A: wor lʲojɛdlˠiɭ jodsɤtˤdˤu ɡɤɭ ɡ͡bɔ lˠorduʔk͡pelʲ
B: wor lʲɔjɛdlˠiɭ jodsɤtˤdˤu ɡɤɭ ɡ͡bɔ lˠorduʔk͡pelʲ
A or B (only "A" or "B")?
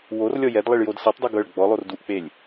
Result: B